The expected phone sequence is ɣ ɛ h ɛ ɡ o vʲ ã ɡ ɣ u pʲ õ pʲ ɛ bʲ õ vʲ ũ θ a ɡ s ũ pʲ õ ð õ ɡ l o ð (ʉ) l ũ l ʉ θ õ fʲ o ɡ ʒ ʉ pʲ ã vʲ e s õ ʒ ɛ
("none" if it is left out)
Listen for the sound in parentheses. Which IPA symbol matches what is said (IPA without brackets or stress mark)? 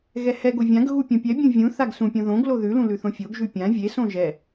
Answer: ʉ